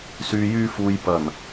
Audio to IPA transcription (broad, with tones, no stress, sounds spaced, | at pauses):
s yː˨ j yː˧ f uː˨ j p ɐ˨˩ n